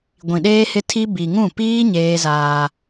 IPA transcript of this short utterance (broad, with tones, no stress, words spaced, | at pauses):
ɡʷĩ˨ɗeː˦hɪ˦tʰi˦ bi˨ŋũ˦˨ piː˦ ɲeː˦zaː˦